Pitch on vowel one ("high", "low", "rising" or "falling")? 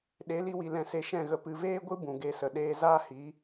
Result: rising